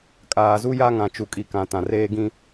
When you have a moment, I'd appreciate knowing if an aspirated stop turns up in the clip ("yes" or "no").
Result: no